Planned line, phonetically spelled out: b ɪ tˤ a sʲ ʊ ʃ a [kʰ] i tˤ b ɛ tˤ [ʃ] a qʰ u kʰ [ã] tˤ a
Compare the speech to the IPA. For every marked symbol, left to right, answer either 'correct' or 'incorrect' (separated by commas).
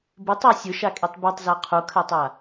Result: incorrect, incorrect, incorrect